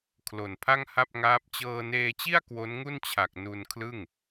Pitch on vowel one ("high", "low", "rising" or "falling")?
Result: low